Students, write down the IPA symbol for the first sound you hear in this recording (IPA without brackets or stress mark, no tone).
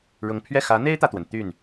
ɻ